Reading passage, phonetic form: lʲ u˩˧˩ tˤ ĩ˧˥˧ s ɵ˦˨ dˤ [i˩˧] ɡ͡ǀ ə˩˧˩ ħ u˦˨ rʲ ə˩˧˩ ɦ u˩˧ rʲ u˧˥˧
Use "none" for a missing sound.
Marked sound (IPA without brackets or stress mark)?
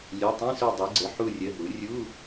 i˩˧